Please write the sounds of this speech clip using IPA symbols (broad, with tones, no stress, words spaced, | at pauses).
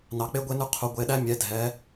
nɑ˩˧k͡pe˦ɡʷe˦nʉ˦ qʰu˩˧ ɡʷe˩˧˩ɗæ˦ mʲɛ˩˧ dʱɛ˩˧